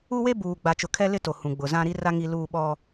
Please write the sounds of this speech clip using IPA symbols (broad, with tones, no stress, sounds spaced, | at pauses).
u˦ w e˦ b uː˨ ɡ͡b a˨ t͡ʃ ʊ˨ kʰ ɛ˦ l ɪ˦ t o˨ h ũ˨ ɡ͡b ʊ˨ z ã˦ ɾ i˦ r a˦ ŋ i˦ l uː˦ ɓ ɔ˦